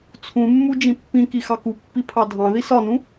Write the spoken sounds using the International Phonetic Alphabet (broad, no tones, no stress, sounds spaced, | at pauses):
t͡sʰ ũ mː u d͡ʒ ĩ pː ĩ k i x ɑ k u pː i pʰ ɑ dʱ ɑ̃ ð i s ɒ n ũ